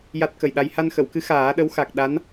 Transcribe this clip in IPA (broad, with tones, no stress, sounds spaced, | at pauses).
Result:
j a˦˥ t̚ k ə˨˩ j ɗ a˧ j h a˧ n x ə˨˩˨ w k ɨ˧˥ x aː˨˩˦ ɗ ə˧˥ w x a˨˩ k̚ ɗ a˧˥ n